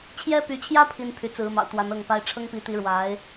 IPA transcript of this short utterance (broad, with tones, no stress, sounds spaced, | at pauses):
t͡ɕʰ j ɛ˥ p y˧˥ t͡ɕʰ j ä˥ pʰ i˥ n pʰ y˧˥ t͡s ɹ̩˧˥ m ɑ̰˨˩ ʊ̯ t̪ w a˧˥ n ɤ˥˩ ŋ p a˥ ɪ̯ ʈ͡ʂʰ ɤ˥ ŋ p i˧˥ t̪ i˧˥ ɻ w a˧˥ ɪ̯